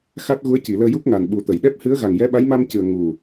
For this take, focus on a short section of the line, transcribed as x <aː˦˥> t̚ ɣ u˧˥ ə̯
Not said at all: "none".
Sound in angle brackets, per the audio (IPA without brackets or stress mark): a˦˥